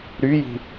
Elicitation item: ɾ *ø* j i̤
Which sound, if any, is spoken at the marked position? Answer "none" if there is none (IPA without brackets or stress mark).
y